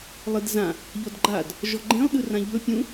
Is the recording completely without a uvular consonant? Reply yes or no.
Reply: yes